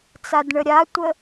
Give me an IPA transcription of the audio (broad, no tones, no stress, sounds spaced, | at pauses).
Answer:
t͡s a d ɳ ə ɾʲ a tʷ ə